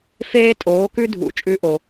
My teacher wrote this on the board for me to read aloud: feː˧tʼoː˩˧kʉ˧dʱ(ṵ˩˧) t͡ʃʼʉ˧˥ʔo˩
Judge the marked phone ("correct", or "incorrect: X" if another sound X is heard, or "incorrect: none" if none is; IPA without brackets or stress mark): correct